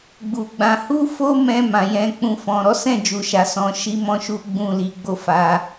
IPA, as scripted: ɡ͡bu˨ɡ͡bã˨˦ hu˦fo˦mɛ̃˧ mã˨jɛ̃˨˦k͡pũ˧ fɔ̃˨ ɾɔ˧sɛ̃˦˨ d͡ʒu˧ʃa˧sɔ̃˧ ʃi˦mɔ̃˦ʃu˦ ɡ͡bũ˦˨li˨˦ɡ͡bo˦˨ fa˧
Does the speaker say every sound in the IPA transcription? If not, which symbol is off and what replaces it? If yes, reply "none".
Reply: ɔ˧ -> ɔ˨˦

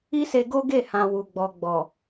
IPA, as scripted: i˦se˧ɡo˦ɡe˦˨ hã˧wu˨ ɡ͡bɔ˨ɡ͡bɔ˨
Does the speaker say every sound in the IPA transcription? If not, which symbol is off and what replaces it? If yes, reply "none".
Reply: none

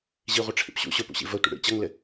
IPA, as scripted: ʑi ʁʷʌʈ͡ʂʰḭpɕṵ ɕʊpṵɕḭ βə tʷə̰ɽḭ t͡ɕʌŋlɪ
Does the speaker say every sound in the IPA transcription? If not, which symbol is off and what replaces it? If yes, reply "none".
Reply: β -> v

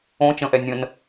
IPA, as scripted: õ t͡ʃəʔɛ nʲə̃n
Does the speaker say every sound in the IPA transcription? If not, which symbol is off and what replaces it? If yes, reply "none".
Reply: ə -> ə̃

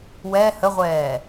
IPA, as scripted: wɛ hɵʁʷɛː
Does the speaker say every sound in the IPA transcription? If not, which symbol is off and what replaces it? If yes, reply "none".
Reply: ɵ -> ə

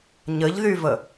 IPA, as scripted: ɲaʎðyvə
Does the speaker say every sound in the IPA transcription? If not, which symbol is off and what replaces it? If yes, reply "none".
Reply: a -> ə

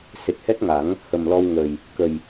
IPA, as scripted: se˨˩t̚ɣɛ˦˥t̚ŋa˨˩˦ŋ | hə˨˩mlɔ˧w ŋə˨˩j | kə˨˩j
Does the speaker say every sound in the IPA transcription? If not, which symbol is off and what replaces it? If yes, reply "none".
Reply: ɣ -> h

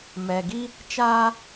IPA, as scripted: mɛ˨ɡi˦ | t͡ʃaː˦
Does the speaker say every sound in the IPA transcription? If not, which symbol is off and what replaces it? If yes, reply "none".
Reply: none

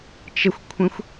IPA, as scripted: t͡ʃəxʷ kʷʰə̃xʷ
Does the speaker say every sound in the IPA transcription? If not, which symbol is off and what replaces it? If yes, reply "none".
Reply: none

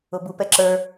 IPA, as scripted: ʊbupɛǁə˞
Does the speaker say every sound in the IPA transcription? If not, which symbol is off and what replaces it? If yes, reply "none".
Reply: none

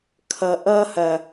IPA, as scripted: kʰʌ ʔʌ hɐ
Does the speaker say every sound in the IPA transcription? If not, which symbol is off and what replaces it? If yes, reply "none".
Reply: none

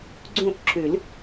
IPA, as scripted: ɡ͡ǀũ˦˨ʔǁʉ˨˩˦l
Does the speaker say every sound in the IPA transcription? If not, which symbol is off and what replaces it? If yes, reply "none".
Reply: none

